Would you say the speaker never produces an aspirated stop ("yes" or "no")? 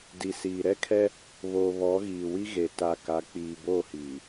no